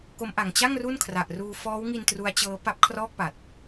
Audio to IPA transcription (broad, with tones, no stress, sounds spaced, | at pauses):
k o˦˥ m ʔ a˨˩ ŋ t͡ɕ a˥˩ ŋ r u˥˩ n kʰ r a˨˩ ʔ r uː˧ f ɔː˦˥ w ŋ i˧ n t r u˦˥ a̯ t͡ɕ ɤː˦˥ p a˦˥ p̚ kʰ r ɔː˥˩ k̚ p a˨˩ t̚